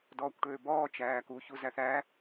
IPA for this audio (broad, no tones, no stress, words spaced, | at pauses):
dɔːkʷʈøːbɔː t͡ʃæːku çuzæθæ